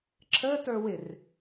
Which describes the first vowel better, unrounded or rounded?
unrounded